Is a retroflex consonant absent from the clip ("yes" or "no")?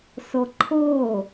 yes